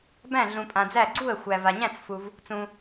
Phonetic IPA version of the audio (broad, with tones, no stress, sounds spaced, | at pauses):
b æ̃˥˩ ɮ ũ˨ pʼ ã˨ d͡z æ˥˩ ɡ͡ǀ u˥˩ ə̯ xʷ æ˨ v a˨ ɲ æ̃˥˩ t͡s f u˨ v | t͡s ũ˨